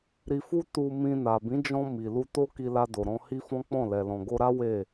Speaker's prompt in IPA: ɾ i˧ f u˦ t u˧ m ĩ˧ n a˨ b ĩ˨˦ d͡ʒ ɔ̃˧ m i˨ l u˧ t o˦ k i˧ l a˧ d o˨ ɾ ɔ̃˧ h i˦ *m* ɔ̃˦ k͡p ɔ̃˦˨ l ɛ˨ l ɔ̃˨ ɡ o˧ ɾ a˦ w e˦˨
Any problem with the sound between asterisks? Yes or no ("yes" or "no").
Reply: yes